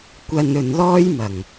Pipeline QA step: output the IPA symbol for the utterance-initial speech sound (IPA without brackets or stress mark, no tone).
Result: kʷ